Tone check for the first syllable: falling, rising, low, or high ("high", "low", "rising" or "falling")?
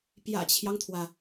low